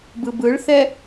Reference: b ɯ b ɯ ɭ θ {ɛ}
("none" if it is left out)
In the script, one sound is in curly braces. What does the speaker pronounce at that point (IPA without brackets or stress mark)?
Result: ɛ